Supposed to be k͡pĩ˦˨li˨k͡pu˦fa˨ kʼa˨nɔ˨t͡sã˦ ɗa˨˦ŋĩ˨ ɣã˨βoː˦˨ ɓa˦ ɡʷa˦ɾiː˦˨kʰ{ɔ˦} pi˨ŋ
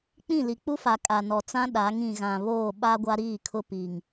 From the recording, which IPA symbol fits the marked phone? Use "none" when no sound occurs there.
ʊ˦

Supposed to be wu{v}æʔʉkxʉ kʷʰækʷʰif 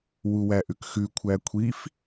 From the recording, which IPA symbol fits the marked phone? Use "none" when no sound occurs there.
w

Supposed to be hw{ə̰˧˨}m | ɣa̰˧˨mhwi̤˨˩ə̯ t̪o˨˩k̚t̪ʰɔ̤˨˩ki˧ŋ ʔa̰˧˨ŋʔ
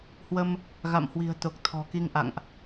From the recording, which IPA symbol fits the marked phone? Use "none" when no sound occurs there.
ə˧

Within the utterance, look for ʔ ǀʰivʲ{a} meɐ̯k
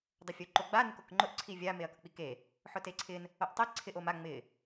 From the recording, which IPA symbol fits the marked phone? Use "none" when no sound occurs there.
a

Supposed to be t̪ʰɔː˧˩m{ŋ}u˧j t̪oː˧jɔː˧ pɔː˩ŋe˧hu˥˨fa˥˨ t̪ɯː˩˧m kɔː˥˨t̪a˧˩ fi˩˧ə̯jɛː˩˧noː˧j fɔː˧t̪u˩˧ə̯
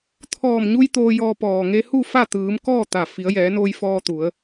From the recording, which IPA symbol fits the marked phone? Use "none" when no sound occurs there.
ɲ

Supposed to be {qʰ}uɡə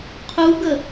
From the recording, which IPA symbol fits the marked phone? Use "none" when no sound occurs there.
qʰ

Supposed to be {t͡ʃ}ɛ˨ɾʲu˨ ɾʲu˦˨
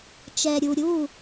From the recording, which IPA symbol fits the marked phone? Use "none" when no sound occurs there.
t͡ʃ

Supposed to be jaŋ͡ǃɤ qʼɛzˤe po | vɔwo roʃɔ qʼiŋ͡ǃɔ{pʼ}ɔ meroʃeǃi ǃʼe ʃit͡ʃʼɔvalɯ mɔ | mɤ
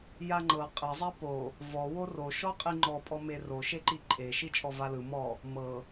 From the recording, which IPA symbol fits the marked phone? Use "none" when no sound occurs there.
pʼ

